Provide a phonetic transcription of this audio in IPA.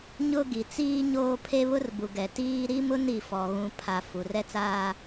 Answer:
ɲʊ˦ɡi˨ t͡siː˦ɲoː˦ pʰe˦βʊ˦rbu˨ɡɛ˨ tiː˦ ɾi˦mʊ˦n i˨fɔ˨ɣũ˨ pʰa˨ fu˨ rɛ˦t͡saː˦

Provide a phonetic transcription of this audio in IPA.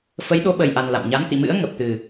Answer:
fə˨˦jɗo˨˦ɓə˨˩jʔa˨˩n la̰˧˨m ɲa˨˦nt̪ḭ˧˨mɨ̰˧˥ə̯ ŋə˨˩p̚t̪ɨ˨˩

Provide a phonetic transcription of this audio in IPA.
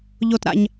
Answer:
ʎo˧tɾa̰˧ɲ

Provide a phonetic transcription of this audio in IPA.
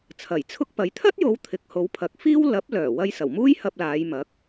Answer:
t͡sʰɐ˨˩jt͡sʰʊ˥k̚pɐ˨˥j t̪ʰɐ˥t̚jo˨˧w t̪ʰɪ˨k̚ ho˨˧wpʰɐ˨˥k̚fiː˥w lɐ˨˥p̚lœː˨˩ wɐ˧jsɐ˨˩wmuː˥j hɐ˧p̚laː˨˧jmɐ˨˥k̚

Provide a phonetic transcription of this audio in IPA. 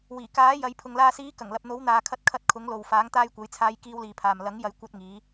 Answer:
wiː˨˩kaː˨˥jɐ˨˧jpʰʊ˨ŋ laː˨siː˨˧kɐ˨˩ŋ lɐ˨p̚n̪o˨˥wn̪aː˨kʰɐ˧t̚ kʰɐ˧t̚kʰʊ˨˥ŋlo˨w faː˨˥ŋt̪aː˧jkʷɐ˨˧jt͡sʰaː˧j kiː˧wliː˨pʰaː˨m lɐ˨˥ŋjɐ˨˥j kʷɐ˧t̚ŋiː˨˧

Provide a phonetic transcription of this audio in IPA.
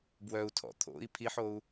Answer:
bwœu̯ tʰɔ̰ t̪ʰo̰i̯ pʰiħou̯

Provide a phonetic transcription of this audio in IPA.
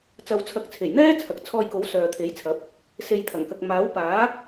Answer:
t͡sɐ˨wt͡sʰɐ˨˥k̚t͡sʰe˨˩jn̪ɛː˥ t͡sʰɐ˨k̚t͡sʰɔː˧jko˨˥w sœː˨t̪ʰe˨˥jt͡sʰɐ˨˥p̚ | se˨jt̪ʰɐ˨˩ŋkɐ˨k̚ maː˨˥wpaː˨˥

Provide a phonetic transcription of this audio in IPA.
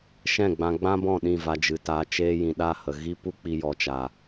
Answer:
ʃɛ̃˦˨ɡ͡bã˧ɡ͡bã˦bɔ̃˦˨ ɗĩ˦˨va˧d͡ʒɨ˨taː˧ t͡ʃeː˧jĩ˨ ɗa˦˨hə˨ ɣi˧pu˧ k͡pi˧ jɔ˨t͡ʃa˨

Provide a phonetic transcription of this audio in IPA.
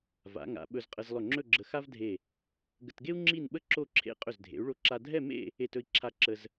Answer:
va̰˩˧ŋa̰˩˧ ɓɵ˧zqʼə˧z lˠɵ˧˩ŋ͡ǁɵ˥˧ɡ͡ǁə˧ xa˥vdʱe˧˩ | ɡə˧tɡe˥u̯ ŋ͡ǁi˥˧nɓə˥ ǁo˥˧ǁʰḛ˥˧ qʼɵ˧˩zdʱḛ˩˧u̯ɭo˧ǁa˧ dʱɛ˥˧mḛ˥˧ | e˧˩tɵ˧i̯ǁʰa˧˩ ǁə˧z

